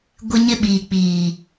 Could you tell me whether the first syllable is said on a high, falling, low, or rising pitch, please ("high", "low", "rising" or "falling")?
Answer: high